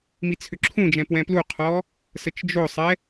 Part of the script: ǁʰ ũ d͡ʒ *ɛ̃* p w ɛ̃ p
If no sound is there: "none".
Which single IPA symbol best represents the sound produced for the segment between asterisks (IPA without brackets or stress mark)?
ɛ̃